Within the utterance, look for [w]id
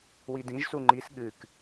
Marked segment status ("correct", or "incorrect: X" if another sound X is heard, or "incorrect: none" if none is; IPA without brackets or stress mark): correct